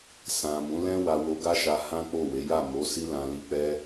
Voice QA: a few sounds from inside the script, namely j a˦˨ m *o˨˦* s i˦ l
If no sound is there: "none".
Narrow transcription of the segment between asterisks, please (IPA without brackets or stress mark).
o˨˦